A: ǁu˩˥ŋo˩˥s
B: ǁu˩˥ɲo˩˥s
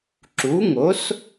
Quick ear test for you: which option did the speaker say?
A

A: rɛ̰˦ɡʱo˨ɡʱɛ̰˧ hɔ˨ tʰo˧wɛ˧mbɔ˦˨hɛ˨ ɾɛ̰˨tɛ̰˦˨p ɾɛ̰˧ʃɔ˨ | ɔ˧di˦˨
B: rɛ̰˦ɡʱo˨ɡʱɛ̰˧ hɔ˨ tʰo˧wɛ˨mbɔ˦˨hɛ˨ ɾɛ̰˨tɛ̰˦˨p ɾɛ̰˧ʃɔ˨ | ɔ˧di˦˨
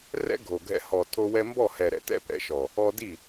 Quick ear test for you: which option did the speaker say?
A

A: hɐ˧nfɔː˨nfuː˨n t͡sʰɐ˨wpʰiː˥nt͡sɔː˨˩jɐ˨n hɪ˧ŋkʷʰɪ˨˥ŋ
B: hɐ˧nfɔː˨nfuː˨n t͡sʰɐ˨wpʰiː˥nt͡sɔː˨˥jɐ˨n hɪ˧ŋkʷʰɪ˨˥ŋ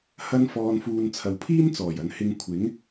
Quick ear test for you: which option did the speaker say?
A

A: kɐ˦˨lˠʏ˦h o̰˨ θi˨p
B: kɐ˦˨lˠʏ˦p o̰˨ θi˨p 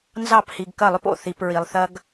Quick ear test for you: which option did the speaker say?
B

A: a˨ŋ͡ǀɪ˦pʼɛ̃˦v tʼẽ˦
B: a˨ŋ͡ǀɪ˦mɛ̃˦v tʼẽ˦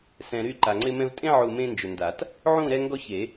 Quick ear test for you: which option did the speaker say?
B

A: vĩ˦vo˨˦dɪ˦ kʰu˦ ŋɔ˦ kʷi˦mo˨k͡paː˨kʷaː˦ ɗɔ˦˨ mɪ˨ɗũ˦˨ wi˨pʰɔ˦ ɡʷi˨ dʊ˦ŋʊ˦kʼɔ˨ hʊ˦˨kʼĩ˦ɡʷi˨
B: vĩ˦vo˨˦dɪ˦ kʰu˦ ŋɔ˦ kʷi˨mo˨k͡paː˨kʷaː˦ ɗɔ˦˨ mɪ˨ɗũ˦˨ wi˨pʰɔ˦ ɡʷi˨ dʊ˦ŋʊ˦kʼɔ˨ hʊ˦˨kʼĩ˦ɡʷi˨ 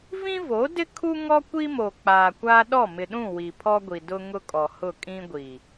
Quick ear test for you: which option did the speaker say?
A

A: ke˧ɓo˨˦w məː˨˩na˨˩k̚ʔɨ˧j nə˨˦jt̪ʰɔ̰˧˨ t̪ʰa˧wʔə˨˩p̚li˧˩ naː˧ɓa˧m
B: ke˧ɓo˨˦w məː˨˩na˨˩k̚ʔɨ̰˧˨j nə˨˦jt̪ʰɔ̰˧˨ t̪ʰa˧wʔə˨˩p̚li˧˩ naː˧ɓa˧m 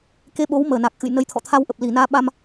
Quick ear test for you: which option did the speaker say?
B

